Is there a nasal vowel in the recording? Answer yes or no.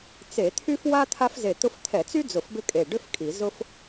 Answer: no